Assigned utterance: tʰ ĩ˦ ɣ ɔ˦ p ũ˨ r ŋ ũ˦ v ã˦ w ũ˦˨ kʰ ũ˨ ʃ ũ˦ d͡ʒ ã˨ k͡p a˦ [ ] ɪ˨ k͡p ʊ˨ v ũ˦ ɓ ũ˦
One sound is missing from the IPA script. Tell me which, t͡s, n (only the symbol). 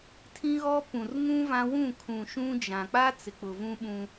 t͡s